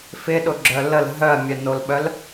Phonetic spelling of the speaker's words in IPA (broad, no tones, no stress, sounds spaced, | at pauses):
f ɪ ɗ ʊ ɡ͡ǁ œ l ə l ɦ œ ɐ̯ mʲ œ n o l ɓ œ l